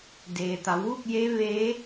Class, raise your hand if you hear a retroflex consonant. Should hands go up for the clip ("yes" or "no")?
no